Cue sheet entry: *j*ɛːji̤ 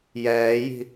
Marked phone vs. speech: correct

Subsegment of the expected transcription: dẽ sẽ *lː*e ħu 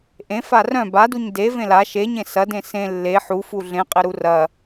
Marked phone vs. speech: correct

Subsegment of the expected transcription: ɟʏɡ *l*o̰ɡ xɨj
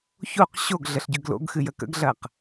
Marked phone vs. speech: correct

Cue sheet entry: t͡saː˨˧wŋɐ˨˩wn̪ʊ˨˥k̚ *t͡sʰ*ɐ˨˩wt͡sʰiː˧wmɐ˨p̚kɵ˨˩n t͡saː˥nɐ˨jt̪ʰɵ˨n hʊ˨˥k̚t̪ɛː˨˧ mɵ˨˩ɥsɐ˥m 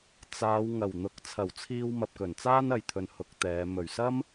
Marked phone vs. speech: correct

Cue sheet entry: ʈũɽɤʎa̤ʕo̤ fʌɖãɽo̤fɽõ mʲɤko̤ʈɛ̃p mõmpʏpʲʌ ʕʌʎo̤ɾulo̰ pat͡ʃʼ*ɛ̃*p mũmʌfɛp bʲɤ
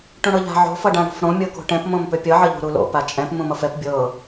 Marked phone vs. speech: correct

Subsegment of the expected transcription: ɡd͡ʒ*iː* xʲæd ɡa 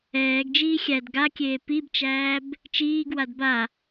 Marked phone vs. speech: correct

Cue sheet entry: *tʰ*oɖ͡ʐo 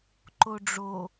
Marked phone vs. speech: incorrect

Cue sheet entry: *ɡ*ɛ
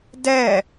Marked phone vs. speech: incorrect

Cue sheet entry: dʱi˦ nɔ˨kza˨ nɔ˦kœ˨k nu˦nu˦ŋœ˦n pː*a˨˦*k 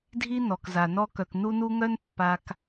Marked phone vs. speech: incorrect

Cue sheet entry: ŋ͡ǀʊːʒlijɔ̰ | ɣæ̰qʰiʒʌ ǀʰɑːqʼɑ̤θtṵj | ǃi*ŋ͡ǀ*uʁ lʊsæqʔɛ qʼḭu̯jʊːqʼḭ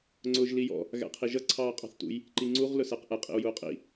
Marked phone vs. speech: correct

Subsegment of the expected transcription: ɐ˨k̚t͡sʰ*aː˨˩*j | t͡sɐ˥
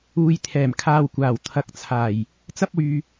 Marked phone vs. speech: correct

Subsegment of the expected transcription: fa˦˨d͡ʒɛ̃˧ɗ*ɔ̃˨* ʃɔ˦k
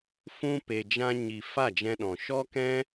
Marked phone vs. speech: correct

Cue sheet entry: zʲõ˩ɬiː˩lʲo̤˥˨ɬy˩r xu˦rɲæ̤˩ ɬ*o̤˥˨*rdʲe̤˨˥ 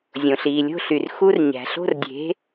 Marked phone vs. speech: correct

